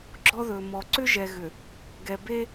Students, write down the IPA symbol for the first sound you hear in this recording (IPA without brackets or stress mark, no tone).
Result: ɡ͡ǁ